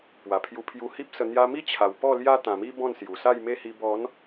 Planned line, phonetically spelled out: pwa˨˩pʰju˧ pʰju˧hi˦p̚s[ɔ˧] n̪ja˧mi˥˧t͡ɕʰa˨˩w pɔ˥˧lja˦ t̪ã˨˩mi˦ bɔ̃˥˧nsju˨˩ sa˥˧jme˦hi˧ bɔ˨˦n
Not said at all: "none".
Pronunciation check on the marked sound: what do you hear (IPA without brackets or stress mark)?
ə˧